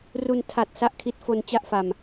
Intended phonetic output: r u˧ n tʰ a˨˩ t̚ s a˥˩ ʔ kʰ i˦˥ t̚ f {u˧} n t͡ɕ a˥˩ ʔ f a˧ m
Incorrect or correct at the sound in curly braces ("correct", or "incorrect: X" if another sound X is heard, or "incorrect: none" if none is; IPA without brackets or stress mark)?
incorrect: o˧